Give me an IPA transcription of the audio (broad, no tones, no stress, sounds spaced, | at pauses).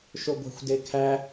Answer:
ʃ o ɡʷ æ̤ xʷ d e kʰ æ